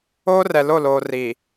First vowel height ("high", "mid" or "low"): mid